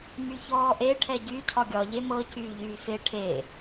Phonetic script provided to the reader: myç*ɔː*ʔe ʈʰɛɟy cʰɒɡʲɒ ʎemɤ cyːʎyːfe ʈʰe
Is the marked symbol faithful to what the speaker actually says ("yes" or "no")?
yes